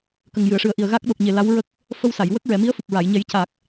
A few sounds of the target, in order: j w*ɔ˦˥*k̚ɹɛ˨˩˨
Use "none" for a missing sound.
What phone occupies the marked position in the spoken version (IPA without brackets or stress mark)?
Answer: ə˦˥